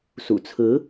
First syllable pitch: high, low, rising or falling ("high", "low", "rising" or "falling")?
low